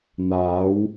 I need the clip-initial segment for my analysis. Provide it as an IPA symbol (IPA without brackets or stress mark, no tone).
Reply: n̪